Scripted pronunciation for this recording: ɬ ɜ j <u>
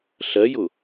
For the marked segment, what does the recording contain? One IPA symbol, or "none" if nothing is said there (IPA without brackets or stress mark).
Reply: ʊ